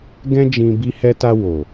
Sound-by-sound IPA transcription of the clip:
ɡ ɛ̃˦ d͡ʒ ĩ˧ b i˧ h ɛ˧ t a˧ w o˨

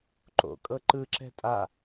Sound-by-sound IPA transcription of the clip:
ǃ o̰ kʼ ɤ ǃ ɯ ǁ ɛ̤ tʼ a

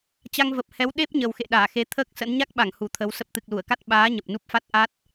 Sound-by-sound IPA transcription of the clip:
t͡ɕ a˧ ŋ v ə˨˩ p̚ h ɛ˨˦ w ɗ e˦˥ p̚ ɲ ə˨˩ w x ḛ˧˨ ɗ aː˧˩ x e˨˦ t̪ʰ əː˦˥ k̚ s ə̰˧˥ n ɲ a˦˥ k̚ ɓ a˧˩ ŋ h u˧˩ t̪ʰ ə˨˦ w s ə˦˥ p̚ t̪ ɨ˨˩ k̚ l u˧˩ ə̯ k a˦˥ t̚ ɓ aː˨˦ ɲ ə˨˩ p̚ n u˦˥ p̚ f a˦˥ t̚ ʔ a˦˥ t̚

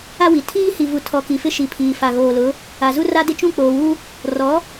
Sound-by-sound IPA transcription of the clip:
a˦ w i˨ tʰ iː˦ h i˨ v u˨ tʰ ɔ˨ k i˨ f ɪ˦ ʃ i˨ pʰ iː˨ f a˨ ɣ oː˨ l ʊ˨˦ | a˨ z u˦ r a˦ d ɪ˦ t͡ʃ ũ˦˨ k͡p oː˨ w u˦ | r ɔ˨˦

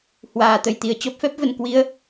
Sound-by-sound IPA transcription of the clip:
h w aː˨˩ t̪ ə˨˩ j t̪ i˨˩ ə̯ t͡ɕ ɔ˦˥ p̚ f ɛ˦˥ p̚ v ə˨˩ n k w i˧ ə̯

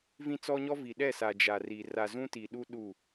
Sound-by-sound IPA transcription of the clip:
v ĩ˦ t͡s ɔ˦ ɲ ɔ˦ v i˨ ɗ ɛ˦˨ s a˨ d͡ʒ a˨ r i˨ r a˨ z ũ˦ t i˨ ɗ u˦ ɗ u˦˨

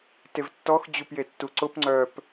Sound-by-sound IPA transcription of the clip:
t e v tː ɔ x d͡ʑ u p j e tː u ǀ ʊ p ŋ͡ǀ œ p

